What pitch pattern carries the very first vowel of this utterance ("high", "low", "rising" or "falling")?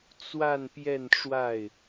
falling